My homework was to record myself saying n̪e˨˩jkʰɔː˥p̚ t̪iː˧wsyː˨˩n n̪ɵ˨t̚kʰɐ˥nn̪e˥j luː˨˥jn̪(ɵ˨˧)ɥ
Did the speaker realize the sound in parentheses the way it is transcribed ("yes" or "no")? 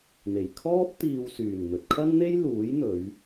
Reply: yes